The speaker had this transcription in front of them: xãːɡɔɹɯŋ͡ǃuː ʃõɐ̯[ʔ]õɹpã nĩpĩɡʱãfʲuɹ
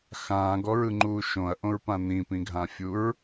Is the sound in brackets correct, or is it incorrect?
correct